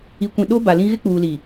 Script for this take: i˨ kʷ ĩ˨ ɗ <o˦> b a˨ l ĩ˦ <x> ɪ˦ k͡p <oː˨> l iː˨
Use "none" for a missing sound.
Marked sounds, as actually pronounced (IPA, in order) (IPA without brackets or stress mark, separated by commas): o˦, ɣ, uː˨